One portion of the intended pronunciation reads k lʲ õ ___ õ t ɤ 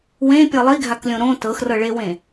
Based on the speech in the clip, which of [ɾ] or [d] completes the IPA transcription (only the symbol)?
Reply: ɾ